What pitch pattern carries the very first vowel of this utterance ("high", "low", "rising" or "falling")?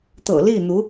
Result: low